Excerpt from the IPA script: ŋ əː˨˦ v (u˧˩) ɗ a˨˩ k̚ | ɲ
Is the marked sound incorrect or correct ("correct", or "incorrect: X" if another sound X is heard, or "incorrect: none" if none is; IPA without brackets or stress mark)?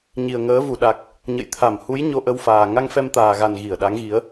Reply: correct